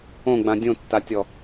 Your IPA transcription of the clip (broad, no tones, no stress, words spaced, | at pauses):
õɡ͡bã dʲõtːatʲɔ